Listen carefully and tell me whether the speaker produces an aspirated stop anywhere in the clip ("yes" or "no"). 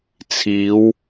yes